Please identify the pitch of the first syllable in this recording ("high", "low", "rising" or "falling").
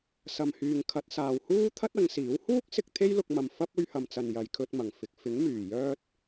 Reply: low